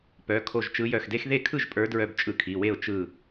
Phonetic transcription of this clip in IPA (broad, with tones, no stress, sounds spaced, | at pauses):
p œ˩˧˩ kʰ o˧˩ ʒ t͡ʃ ɯ˨˦ j œ˧˩ x d e˦˥ x ð e˥˩ kʰ ɯ˥˩ ʒ pʼ ə˞˨˦ d ɹ œ˧˩ b t͡ʃʼ ɯ˧˩ kʰ i˩˧˩ w e˥˩ ʊ̯ t͡ʃ ɯ˧˩